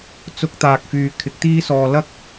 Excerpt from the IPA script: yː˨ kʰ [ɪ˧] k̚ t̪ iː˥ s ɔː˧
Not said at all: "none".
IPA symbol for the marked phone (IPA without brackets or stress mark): ɪ˨˥